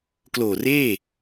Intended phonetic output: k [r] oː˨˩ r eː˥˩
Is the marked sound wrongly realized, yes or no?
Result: yes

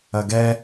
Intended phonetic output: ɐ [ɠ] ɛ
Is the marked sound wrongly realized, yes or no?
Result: yes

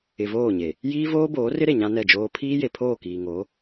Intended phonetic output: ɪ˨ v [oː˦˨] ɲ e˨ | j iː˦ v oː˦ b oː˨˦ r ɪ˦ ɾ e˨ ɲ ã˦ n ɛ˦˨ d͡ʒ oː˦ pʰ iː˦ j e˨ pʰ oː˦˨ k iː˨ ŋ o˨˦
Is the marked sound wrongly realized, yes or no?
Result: no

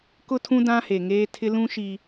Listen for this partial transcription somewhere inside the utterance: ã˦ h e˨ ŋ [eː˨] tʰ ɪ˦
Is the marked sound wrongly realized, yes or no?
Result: yes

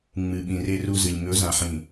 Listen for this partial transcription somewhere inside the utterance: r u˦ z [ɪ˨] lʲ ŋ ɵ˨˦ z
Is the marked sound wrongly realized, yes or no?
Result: yes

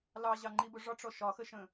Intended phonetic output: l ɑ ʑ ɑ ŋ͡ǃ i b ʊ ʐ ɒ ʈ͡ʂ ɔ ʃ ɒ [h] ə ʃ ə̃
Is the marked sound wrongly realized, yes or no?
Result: yes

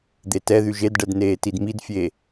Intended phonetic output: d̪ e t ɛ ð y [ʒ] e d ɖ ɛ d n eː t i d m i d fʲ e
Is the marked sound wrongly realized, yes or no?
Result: no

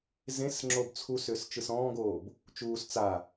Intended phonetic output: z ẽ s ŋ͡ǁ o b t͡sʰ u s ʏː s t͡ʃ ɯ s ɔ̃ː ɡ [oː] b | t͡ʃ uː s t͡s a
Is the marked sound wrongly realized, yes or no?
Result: no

